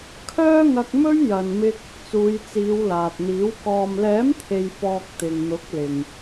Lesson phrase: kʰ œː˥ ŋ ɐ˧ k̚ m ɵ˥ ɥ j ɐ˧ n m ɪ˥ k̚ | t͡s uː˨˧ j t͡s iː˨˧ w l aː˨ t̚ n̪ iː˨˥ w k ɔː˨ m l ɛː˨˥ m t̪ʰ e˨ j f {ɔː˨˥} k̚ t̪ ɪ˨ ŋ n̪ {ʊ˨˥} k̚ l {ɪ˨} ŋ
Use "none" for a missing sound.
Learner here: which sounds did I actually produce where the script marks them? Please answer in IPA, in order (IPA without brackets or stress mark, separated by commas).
ɔː˨, ʊ˨˥, ɪ˨